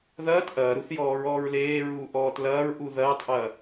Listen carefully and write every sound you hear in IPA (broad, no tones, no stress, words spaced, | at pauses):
ðɐːt ʔɐːɾuθ jɔːɹɔːɹleːɹuː ʔɔːtlɐːɹʔu ðɐːtˤʔɐː